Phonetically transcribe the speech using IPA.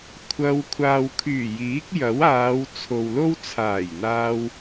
kʷʰ ɐ˧ w kʷʰ aː˨ w kʰ yː˨˩ j iː˨˥ k̚ j ɐ˨˥ w aː˨˧ w t͡sʰ o˨ w l o˥ w t͡sʰ aː˨˩ j n̪ aː˧ w

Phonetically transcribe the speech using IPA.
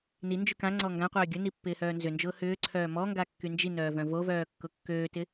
n i n d͡ʒ y k ã ŋ͡ǀ ɔ ŋ ɡ ã qʷ œː ɡʲ ʊ n i pː ɪː h œː n z ʏ n d͡ʒ ʊː h ʏː ǀʰ œː m ɔ ŋ ɡ a kː y n d͡ʒ i n œː v œ̃ v o v œː kː ʊ kː øː t ɪ

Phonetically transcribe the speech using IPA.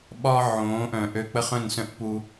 ɓ ɒ˦ ʕ õː˨˦ ʔ œ̃˨ ʔ ø˧ k͡p ə˦ χ œ̃˦˨ n s œ̃˦ ʔ p u˧

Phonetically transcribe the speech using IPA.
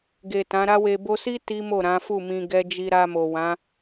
ɡ e˨ t ã˨˦ ɾ a˦ w e˧ b o˧ s i˦ t i˦ m o˦˨ ɾ ã˨˦ f u˦˨ m ĩ˧ ɡ ɛ˦ d͡ʒ i˧ ɾ a˧ m o˨ w ã˨˦

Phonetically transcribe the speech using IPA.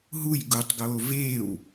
ɦ u j ɡ u tˤ ɡ oː v eː w

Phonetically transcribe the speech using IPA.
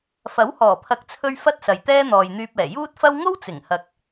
f ɐ˨˥ w h ɔː˨˩ pʰ ɐ˨˥ k̚ t͡sʰ ɵ˧ ɥ f ɐ˥ t̚ s ɐ˨ j t̪ ɛː˥ n̪ ɔː˨ j n̪ yː˧ p̚ ɛː˨˩ j uː˥ t̚ f ɐ˥ w ŋ o˥ w t͡s ɪ˨˩ ŋ h ɐ˨ k̚

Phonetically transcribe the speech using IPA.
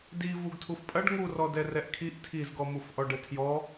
d i v u ɡ tʰ u f pʼ ɐ ɖ ŋ u r ɔ d ɛ r ɛ ʔ kʰ i ʔ tʰ i z ɡ ɔ m u f ʔ ɔ ɖ ɘ tʰ j ɔ

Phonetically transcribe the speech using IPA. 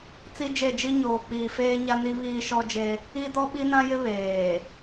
t͡s i˦ d͡ʒ e˦˨ d͡ʒ i˦ ɲ oː˨ k͡p iː˨ f eː˦ ɲ a˦ n i˦ β iː˦ ʃ ɔ˦ d͡ʒ e˦ | i˦ d ɔ˦ ɓ i˦ n ã˦ j ɪ˦ β eː˨

